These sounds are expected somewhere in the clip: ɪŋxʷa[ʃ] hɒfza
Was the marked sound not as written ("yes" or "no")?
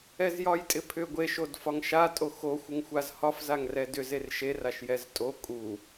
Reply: yes